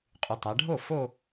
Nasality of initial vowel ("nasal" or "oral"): oral